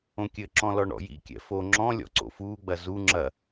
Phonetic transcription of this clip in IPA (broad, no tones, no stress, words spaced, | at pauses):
õkʲɘǁɔ̃lɔ ɳɔ̰jḭkʲɛ̰ fo ŋ͡ǁɔ̃ lʲɔ̰ǀo̰fuːɡ͡bɐ zu ŋ͡ǁɐ